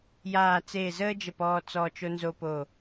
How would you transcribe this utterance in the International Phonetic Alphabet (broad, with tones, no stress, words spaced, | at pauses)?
jaː˧˩t͡seː˧˩zəː˥d͡ʒə˧˩p ɔː˧t͡sɔː˧˩t͡ʃo˧nzo˧ po˧˩